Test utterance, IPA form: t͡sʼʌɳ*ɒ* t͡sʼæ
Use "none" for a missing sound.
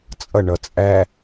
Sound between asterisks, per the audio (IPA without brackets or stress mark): ʌ